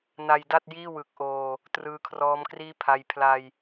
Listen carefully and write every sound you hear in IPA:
n a˧ j d a˥˩ t̚ j iː˥˩ w ɯ˨˩ k̚ ʔ oː˧ | t r ɯː˧ kʰ r ɔː˦˥ m k r iː˥˩ pʰ a˧ j pʰ l a˧ j

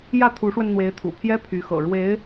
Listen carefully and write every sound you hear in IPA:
j ä˥˩ t̪ʰ u˧˥ ʂ w ə˧ n n̪ w e˧˥ ɪ̯ t̪ʰ ṵ˨˩ pʰ j ɛ˥ pʰ y˧˥ x ɤ̰˨˩ ɻ w e˧˥ ɪ̯

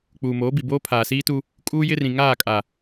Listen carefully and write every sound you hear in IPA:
k͡p uː˨ m oː˨˦ b i˨ b oː˦ pʰ aː˨ s iː˦ t u˦ | kʼ uː˦ j ɪ˦ r ĩ˨ ŋ aː˦˨ kʼ a˨

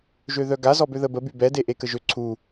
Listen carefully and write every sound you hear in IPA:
ʒ ø ð œ ɡ a z ɔ b ø ð ə b ə b y b ɛ d e ʔ e k ə ʒ ø ǀʰ u

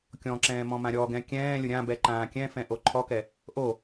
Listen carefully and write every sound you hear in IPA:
kʲ ɔ̃ ǁ ɛ̃ː m ɔ̃ m ã ɾʲ ɔ ɡ ɛ̃ kʲ ɛ̃ː lʲ ʊ ɾʲ ã b ɛ ǃ ãː kʲ ɛ̃ f ɛ̃ ʔ o ǃʰ ɔ k ɛ | ʔ o

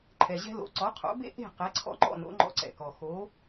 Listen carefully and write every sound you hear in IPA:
ǃʰ ɛ˩ ʑ ɛ̤˧ l o̰˩˥ ǀ ɔ˩˥ qʰ o̰˩˥ b ḛ˥ ʔ e̤˥˩ q ɛ˩˥ ǀʰ ɔ̰˧ ŋ͡ǃ ɔ̰˥˩ n o̰˩˥ ŋ͡ǃ ɔ̰˧ ǀ ɛ̰˩ k ɔ˩ x o˩˥

